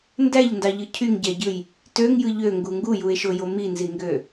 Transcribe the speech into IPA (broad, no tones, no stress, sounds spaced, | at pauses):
n d æ ʎ n d ɑ ʎ ɯ cʰ y ŋ ɟ æ ɟ ɯ j | t ø ŋ j ɯ ʎ ø ŋ ɡ u ŋ ɡ u j u e̯ ʃ o j o m i n z i ŋ ɡ ø